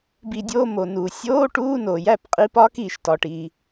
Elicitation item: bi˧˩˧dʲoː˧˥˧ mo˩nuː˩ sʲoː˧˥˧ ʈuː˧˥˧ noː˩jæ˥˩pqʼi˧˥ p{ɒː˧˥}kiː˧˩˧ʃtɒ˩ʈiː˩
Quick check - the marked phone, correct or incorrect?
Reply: correct